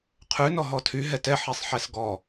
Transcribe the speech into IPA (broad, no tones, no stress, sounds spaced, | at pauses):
qʰ ʉ n ɔ ɦ ɔ tʰ y ɦ ɛ t ɛ ħ i sˤ ħ ɛ s ɡ ɔ